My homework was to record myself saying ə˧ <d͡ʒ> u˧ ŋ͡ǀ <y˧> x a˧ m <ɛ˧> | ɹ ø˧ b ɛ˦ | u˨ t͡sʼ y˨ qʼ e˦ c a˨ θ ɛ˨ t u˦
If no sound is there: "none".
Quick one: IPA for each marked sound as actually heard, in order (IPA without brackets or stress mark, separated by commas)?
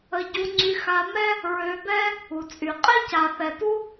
ɟ, y˧, ɛ˦